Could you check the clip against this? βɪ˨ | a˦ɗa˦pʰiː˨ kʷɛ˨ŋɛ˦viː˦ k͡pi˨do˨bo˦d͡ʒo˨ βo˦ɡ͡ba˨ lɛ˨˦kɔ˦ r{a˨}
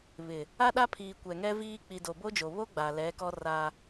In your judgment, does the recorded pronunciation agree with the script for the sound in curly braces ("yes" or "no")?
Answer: no